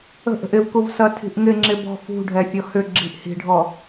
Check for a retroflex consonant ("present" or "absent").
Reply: present